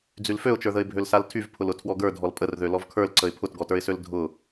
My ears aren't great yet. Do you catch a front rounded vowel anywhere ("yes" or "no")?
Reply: yes